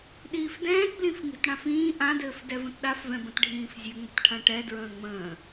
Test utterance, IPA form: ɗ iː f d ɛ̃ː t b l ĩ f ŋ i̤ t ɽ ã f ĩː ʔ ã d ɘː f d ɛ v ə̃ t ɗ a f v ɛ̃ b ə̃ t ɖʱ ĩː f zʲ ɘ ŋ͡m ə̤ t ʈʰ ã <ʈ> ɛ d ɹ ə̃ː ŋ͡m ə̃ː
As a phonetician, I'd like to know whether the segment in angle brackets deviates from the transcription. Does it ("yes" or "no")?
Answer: no